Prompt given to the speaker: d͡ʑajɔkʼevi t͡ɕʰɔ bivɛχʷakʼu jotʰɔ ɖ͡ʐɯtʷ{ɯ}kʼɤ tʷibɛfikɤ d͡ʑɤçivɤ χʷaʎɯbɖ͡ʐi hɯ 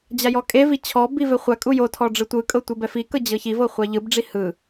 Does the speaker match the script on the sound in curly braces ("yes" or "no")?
yes